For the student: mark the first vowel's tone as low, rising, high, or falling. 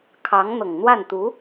rising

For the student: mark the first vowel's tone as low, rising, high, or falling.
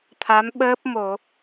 rising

